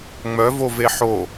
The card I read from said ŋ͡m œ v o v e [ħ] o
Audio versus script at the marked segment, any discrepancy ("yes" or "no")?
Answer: no